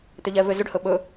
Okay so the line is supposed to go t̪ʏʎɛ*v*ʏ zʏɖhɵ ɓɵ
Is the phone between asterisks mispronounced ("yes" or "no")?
no